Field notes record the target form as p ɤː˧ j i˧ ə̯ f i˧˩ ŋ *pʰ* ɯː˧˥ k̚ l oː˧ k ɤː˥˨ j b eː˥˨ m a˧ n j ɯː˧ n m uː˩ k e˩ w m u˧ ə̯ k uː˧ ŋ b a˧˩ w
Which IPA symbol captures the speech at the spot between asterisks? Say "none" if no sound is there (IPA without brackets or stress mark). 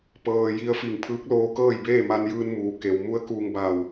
pʰ